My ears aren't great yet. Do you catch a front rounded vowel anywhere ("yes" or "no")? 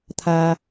no